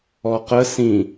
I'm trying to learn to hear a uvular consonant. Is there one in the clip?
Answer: yes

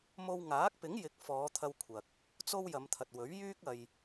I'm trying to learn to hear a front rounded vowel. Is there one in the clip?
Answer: yes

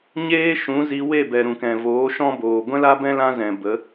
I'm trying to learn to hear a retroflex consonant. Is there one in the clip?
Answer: no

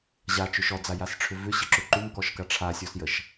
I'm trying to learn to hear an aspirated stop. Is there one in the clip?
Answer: yes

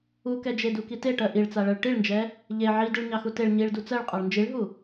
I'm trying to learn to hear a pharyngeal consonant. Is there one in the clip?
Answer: yes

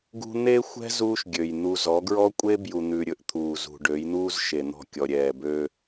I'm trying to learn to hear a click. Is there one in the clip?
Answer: no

